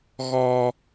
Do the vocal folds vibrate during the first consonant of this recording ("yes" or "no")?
yes